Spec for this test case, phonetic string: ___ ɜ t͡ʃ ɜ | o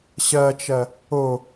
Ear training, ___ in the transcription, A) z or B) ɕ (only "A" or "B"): B